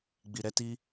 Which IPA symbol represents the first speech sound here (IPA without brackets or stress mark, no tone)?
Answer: ɡ͡b